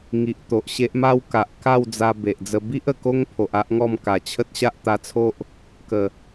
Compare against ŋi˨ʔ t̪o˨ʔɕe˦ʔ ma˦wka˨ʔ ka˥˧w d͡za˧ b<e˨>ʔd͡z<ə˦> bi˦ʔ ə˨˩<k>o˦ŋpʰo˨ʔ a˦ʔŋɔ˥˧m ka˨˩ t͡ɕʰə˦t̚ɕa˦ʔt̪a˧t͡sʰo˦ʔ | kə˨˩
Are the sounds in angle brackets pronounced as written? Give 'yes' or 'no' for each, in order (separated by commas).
yes, no, yes